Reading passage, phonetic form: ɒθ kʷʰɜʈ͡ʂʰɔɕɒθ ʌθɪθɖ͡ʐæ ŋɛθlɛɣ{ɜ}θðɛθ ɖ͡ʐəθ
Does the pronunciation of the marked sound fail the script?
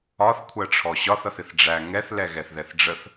yes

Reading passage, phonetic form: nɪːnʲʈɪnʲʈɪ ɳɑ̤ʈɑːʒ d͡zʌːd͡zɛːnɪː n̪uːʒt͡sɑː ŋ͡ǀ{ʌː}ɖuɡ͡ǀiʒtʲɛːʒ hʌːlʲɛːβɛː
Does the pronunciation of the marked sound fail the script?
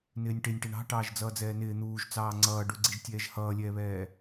no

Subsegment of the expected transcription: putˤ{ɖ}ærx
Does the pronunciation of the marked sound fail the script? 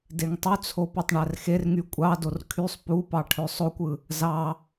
yes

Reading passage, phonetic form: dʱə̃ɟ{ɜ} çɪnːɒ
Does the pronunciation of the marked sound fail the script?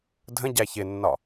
yes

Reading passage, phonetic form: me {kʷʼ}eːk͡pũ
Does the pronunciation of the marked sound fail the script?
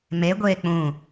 yes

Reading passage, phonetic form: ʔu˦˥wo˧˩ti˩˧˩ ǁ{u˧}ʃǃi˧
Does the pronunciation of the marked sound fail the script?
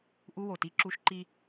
no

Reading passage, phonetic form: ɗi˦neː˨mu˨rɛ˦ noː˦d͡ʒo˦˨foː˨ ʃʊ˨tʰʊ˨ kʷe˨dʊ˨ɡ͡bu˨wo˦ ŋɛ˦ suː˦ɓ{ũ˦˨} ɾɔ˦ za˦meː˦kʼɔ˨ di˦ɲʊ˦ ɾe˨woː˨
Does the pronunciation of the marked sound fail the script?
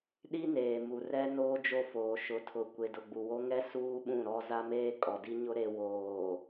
no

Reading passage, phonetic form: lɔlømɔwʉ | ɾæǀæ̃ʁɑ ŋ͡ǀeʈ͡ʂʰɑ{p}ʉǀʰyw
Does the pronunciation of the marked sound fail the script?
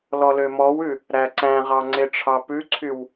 no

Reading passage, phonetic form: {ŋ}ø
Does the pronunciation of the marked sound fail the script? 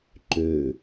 yes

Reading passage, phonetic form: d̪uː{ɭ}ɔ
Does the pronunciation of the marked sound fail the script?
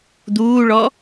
no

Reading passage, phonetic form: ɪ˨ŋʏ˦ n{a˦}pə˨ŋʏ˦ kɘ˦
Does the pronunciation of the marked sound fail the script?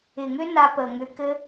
no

